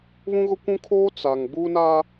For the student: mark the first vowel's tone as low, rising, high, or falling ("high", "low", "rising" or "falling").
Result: high